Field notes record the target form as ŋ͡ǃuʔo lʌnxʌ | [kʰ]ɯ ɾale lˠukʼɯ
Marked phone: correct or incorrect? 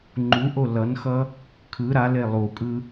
correct